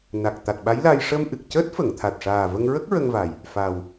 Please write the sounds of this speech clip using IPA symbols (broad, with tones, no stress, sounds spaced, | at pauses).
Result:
n a˨˩ k̚ t̪ a˨˩ t̚ ɓ a˧˥ j l a˧ j ʂ ə˧ m ʔ ɨ˨˩ k̚ c əː˦˥ t̚ f ə˨˩˨ ŋ t̪ʰ a˨˩ t̚ ʂ aː˨˩ v ə˧ ŋ ɹ ə˦˥ k̚ ɹ ə˧ ŋ v a˨˩ j | f a˨˩ w